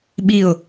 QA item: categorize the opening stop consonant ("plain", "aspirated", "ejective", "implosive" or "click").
implosive